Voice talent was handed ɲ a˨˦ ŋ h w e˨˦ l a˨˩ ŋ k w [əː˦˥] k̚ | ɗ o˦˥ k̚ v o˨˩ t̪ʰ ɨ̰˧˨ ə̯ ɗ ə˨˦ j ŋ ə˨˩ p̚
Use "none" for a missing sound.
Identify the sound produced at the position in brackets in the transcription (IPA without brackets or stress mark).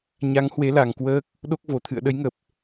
əː˦˥